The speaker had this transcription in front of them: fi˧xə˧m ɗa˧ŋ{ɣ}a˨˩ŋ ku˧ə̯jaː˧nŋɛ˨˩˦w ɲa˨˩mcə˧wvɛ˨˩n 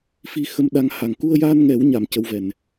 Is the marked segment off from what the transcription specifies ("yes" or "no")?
yes